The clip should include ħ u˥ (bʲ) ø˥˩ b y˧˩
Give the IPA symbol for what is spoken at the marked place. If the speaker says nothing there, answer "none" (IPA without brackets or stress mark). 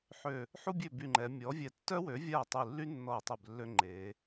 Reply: bʲ